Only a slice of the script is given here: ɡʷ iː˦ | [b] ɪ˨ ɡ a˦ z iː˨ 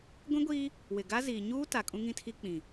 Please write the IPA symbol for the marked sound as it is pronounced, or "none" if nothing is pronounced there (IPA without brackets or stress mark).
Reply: w